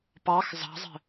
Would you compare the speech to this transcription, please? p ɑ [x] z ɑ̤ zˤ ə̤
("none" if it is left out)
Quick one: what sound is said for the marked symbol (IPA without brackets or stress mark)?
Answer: x